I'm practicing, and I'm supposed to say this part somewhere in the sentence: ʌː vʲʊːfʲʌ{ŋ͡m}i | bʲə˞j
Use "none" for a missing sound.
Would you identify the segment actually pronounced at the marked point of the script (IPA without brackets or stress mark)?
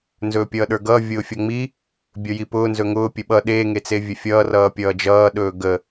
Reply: ŋ͡m